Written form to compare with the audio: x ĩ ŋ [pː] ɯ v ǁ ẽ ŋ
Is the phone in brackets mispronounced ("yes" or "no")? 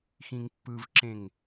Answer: no